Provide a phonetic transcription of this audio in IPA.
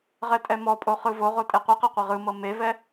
ʁ ɛ tʼ ɛ m ɔ pʼ o χ ɯ v o ʁ o tʼ e qʷ ɯ q ɛ qʷ ɛ ʁ ɯ m ɤ m e v ɛ

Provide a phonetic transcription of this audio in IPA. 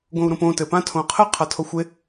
ɡ õ u̯ ɾ õ p õ t ɘ p ã tʰ õ qʰ ɘ qʰ a tʰ o xʷ e

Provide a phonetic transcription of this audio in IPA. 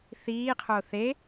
θ iː qʰ o θ e

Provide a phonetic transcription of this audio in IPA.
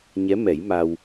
ɲ ɛ˧˥ m ɛ˨˩˦ j m a˧ w

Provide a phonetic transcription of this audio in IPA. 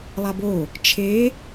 lˠ a b o | t͡ʃʰ e

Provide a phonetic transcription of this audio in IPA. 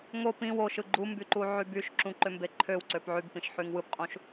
ŋ o p ĩ w o ʃ ɯ ɡ͡ǃ u m b y ǃ u ʕ y b y ʃ ǁ ũ ǃ ø m b e ǃʰ ø w ǀ ø p ʕ y b p ĩ ʃ ħ y ŋ w ɯ p qʼ ũ ʃ

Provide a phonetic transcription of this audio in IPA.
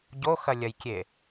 ɟ o x ɐ lʲ ɐ j kʲ e

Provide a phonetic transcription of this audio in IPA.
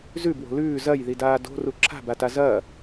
z ʉ b w o̤ l ʉː z ɐ j ð i d aː d o̤ r u ǁʰ a̤ b a t a z ɐː

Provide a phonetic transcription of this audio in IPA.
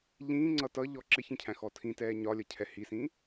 ʎ ĩː ŋ͡ǀ ʌ t ʌ ʎ ɔ ǁ ɪ ç ĩ cʰ æ̃ x ɔ tʰ ĩ t ɛː ɲ ɒ lʲ ʌ cʰ ɛ h i s ĩː

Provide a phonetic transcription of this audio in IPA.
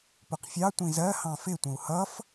p ʊ q fʲ ɑ tʷ ĩ z ɜ h ɑ̃ f ɪ tʷ ə̃ u̯ h ʌ f

